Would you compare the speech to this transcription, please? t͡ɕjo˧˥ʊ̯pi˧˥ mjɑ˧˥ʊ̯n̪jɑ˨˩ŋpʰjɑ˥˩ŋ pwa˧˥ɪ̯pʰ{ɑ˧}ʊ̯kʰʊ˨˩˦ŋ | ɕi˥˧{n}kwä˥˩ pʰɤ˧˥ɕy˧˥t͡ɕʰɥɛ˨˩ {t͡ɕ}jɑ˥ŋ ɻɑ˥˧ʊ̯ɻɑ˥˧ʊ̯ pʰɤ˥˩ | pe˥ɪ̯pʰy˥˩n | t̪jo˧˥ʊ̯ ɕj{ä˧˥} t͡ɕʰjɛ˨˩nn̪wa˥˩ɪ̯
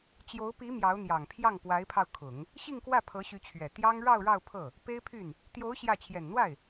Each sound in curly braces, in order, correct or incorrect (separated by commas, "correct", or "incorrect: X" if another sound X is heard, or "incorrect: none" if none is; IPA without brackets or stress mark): correct, incorrect: ŋ, incorrect: t̪, incorrect: ä˥˩